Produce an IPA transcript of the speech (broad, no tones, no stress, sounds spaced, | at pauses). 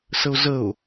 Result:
s ə ʊ̯ z ə ʊ̯